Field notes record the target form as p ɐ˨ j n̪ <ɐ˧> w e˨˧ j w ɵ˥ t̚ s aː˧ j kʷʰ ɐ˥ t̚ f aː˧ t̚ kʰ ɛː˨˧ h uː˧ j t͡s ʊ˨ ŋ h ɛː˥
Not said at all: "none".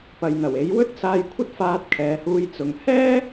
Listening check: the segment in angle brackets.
ɐ˨˩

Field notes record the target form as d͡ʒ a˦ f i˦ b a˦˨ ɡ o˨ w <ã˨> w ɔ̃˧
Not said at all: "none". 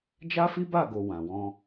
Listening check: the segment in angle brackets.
ã˨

